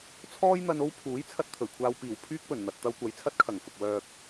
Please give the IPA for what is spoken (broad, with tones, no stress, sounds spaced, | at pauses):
t͡sʰ ɔː˥ j n̪ ɐ˧ n o˥ w pʰ uː˨˥ j t͡sʰ ɐ˧ t̚ t̪ʰ ɵ˨˩ ɥ kʷʰ aː˧ w p iː˨˩ w pʰ yː˥ k̚ p ɵ˨˩ n n̪ ɐ˨ t̚ t̪ ɐ˧ w kʷ ɐ˨˧ j t͡sʰ ɐ˥ t̚ kʰ ɐ˨˩ ŋ f ʊ˨ k̚ w œː˧ k̚